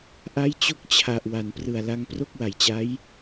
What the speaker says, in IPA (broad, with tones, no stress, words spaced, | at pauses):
ʔa˦˥jt͡ɕo˦˥k̚ t͡ɕʰa˨˩ʔ wa˩˦nprɯ˨˩a̯la˧ŋ pro˥˩k̚wa˨˩jt͡ɕa˦˥j